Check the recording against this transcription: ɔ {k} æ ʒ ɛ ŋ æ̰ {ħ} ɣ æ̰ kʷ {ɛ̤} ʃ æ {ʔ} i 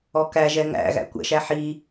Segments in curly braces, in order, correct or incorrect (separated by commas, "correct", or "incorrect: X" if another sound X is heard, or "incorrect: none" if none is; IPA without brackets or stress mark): correct, incorrect: none, incorrect: ɛ̰, incorrect: ħ